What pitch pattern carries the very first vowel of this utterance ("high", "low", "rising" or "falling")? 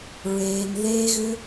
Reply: low